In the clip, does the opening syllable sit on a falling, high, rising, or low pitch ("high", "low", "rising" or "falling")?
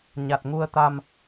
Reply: low